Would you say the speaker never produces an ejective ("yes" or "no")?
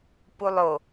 yes